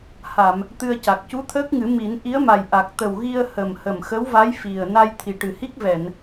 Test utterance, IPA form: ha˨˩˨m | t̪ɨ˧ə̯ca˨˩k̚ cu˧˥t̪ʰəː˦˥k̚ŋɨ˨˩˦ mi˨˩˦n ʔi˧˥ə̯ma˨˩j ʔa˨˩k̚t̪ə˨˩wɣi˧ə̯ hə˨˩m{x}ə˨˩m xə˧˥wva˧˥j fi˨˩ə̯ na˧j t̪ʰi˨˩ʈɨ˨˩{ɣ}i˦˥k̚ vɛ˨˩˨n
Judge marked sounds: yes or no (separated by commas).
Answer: no, no